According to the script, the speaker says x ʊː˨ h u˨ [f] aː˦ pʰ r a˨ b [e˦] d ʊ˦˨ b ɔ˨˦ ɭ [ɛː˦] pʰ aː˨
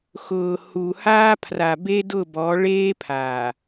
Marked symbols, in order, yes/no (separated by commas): no, yes, no